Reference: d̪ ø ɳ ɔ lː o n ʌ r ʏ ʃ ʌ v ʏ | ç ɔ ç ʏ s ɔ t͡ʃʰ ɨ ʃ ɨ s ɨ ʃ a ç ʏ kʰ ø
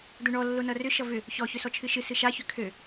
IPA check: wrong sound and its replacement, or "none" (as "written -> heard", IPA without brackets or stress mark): none